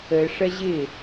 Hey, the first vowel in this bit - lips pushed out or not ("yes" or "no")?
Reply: no